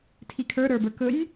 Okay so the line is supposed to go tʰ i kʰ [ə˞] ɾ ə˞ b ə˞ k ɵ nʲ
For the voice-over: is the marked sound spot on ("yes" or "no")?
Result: yes